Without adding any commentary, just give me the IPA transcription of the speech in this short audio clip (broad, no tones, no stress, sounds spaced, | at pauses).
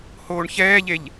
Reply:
h oː ɳ ç ɛː ʎ e ʎ